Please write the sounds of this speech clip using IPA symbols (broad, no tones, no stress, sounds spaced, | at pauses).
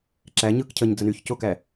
ǁ æ ɲ ɯ k cʰ ə ɲ d͡z ə n y ç c o k æ